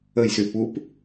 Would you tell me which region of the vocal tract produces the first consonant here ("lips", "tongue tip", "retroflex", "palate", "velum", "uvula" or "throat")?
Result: palate